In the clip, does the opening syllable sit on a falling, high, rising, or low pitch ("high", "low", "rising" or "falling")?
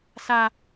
high